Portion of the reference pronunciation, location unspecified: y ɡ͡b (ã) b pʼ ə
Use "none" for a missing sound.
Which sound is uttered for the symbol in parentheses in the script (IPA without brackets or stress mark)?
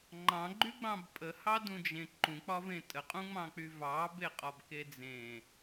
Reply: ɑ̃